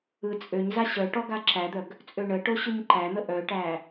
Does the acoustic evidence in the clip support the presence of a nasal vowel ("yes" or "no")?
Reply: no